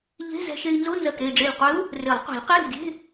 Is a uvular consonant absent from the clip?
no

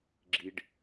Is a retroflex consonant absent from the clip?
no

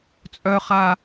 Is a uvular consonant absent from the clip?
no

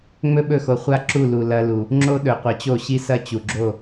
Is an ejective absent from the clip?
yes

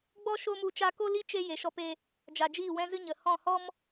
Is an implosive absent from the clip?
yes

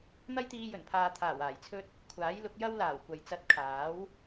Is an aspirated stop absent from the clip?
no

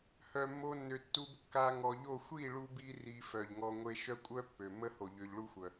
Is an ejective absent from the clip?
no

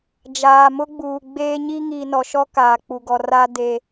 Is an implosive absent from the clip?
yes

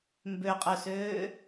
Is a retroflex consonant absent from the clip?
yes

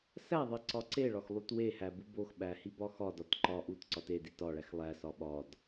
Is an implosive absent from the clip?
no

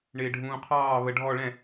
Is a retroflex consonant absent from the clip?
no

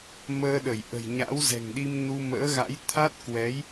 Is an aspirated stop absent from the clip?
no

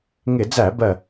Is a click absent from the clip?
yes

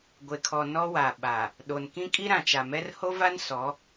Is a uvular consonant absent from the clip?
yes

